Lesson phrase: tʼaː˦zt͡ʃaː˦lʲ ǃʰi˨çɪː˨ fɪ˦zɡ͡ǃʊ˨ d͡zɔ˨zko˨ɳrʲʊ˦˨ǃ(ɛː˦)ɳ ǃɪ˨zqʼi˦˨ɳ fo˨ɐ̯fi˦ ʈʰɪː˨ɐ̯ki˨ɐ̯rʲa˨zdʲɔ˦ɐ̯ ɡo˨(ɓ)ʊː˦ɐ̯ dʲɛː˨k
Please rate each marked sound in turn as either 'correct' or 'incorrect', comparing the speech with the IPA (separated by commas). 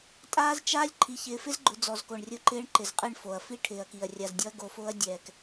incorrect, incorrect